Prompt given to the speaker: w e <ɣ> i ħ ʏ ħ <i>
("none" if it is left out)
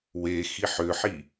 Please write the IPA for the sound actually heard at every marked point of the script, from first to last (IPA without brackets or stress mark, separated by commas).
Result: x, i